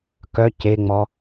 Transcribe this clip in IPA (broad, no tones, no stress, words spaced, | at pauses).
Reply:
kœ ceŋ͡mɔ